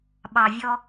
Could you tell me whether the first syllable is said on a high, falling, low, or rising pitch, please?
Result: low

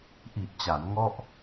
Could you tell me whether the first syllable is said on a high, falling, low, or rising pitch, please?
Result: low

